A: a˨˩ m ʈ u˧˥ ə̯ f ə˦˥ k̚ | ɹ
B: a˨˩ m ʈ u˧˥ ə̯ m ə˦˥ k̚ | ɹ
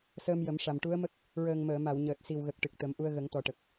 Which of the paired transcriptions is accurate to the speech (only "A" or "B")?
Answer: B